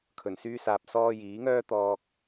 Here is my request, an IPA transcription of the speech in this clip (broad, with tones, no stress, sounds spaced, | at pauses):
kʰ ɵ˨˩ n s yː˧ s aː˨ p̚ s ɔː˧ j iː˨˥ ŋ œː˥ t̪ ɔː˨ k̚